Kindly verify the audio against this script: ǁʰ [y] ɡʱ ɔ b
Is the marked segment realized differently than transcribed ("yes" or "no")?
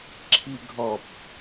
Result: yes